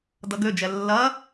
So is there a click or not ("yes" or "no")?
no